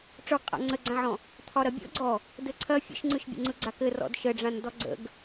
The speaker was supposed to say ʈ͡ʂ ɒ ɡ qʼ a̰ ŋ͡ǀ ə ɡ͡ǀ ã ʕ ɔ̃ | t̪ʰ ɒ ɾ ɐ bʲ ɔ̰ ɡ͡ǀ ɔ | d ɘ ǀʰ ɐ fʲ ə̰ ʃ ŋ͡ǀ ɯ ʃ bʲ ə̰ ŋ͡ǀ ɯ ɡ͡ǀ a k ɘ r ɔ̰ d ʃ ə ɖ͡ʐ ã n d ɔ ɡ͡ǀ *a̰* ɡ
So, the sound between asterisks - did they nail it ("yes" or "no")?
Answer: no